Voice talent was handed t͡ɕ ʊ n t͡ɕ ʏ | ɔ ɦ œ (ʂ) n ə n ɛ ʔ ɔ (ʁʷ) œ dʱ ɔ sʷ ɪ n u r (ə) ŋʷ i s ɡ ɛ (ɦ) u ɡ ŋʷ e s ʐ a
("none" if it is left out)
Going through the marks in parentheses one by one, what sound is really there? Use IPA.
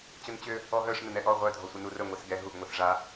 ʂ, ʁʷ, ə, ɦ

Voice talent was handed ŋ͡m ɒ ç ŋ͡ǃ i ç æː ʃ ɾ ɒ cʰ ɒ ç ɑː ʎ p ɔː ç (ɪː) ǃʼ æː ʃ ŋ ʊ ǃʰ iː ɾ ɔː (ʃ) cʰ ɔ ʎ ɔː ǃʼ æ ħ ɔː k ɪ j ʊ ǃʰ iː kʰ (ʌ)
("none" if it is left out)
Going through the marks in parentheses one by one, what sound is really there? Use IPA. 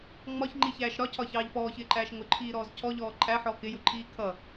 ɪː, z, ʌ

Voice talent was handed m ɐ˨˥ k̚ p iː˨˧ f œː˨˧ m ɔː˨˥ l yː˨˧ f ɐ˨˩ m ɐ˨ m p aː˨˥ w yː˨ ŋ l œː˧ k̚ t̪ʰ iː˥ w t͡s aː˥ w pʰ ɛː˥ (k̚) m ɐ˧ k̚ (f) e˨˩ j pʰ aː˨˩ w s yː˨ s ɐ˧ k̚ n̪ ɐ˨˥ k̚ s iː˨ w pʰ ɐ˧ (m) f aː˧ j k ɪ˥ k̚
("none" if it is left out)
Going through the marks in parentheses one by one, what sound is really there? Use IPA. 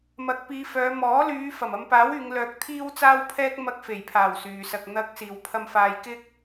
k̚, f, m

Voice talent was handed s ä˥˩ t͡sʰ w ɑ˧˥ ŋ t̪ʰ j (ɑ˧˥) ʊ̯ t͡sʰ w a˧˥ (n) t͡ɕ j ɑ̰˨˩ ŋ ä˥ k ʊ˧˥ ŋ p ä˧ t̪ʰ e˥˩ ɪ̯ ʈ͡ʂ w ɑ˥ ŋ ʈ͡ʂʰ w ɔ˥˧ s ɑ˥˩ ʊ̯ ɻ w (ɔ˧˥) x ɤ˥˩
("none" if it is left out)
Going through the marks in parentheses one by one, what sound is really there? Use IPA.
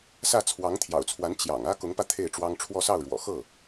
ɑ̰˨˩, n, ɔ̰˨˩

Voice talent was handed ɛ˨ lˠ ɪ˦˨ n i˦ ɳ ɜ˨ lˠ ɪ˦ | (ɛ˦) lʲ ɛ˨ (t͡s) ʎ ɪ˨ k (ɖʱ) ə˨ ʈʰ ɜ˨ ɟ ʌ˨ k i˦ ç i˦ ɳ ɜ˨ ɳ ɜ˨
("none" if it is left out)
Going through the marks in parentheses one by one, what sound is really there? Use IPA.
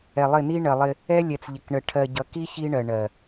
ɛ˦, t͡s, ɳ

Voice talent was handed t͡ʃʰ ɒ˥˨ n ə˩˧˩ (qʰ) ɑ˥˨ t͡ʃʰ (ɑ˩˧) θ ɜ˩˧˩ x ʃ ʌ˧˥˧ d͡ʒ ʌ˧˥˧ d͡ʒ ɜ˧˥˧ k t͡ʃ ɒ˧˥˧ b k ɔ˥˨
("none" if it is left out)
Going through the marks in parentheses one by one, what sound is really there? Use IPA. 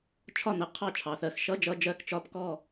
qʰ, ɑ˩˧

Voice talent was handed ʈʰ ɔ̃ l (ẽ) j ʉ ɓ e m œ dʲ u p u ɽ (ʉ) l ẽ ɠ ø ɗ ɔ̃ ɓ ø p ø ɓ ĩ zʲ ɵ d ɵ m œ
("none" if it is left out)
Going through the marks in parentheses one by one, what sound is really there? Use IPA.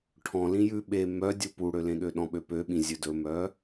ĩ, ø

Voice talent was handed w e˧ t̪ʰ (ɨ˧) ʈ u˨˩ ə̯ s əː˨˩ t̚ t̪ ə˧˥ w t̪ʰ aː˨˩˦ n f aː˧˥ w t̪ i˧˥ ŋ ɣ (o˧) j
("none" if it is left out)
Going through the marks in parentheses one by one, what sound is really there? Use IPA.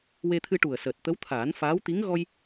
ɨ˧, ɔ˧

